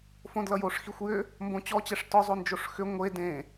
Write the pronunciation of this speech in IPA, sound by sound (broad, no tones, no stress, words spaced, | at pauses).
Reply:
fõdlʌjoʂ xixʷjʏ | mbõt͡ɕɔt͡ɕɛʂ tɔzˤond͡ʒoʂ xʏ ŋʷe dẽ